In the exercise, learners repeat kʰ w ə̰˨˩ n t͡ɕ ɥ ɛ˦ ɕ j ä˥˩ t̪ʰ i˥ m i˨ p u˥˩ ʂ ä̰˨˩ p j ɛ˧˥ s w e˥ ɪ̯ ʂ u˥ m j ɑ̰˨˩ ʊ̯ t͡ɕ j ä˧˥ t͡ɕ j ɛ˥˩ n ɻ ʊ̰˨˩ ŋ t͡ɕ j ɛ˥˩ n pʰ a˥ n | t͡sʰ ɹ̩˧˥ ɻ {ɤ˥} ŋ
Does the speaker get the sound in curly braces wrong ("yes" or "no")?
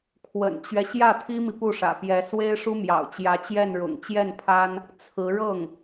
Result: yes